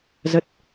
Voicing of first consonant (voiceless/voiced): voiced